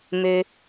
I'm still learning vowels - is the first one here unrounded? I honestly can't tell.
no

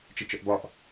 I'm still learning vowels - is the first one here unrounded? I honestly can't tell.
yes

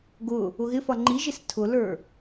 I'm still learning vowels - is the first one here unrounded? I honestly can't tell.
no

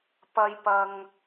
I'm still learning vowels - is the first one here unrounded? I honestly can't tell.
yes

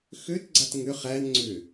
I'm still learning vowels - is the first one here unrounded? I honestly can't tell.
no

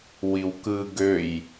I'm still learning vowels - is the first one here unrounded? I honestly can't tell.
yes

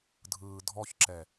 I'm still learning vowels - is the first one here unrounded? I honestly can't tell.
yes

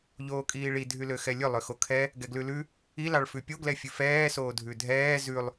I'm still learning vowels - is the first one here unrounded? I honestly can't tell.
no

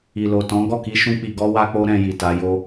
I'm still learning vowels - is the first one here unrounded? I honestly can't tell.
yes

